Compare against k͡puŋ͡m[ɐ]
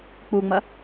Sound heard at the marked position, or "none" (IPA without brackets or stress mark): ɐ